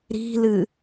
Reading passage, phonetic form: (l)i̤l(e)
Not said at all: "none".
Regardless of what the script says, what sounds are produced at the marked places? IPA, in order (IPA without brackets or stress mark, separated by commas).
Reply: ɾ, ɨ